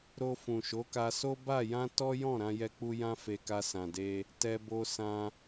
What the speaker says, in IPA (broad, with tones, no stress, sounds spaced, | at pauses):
ɾ o˧ f ũ˨ ʃ o˨˦ k a˧ s o˦ b a˦˨ j ã˧ t ɔ˦ j ɔ̃˦˨ ɾ ã˧ j ɛ˧ k͡p u˧ j ã˦ f e˧ k a˧ s ã˨ d e˧ | t ɛ˧ b o˧ s ã˧